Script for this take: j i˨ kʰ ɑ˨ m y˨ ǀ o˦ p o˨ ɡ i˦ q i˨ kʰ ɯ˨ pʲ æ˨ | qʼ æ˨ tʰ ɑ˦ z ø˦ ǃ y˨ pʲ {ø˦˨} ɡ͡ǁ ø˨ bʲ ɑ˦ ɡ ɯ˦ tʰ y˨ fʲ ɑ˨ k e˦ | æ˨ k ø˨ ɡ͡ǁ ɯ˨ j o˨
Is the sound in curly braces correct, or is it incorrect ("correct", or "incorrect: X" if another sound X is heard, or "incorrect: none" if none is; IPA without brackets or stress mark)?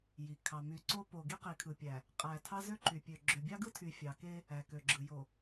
incorrect: ø˨